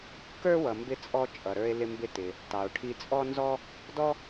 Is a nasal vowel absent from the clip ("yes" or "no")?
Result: yes